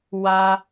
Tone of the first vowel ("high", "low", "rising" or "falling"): low